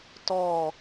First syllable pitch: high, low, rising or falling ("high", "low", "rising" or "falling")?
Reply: falling